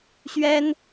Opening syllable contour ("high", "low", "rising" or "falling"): high